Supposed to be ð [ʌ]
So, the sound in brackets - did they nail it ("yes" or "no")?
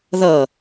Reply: yes